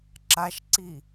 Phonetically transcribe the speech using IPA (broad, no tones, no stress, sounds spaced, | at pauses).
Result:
ǁ a ʃ ǀ i